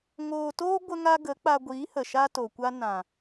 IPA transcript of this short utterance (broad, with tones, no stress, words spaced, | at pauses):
ŋoː˧toː˦ ɡʷə˦ŋa˦ ɡə˨˦k͡pa˧ɡʷiː˨˦hə˨ ʃa˦to˨kʷa˦ nã˨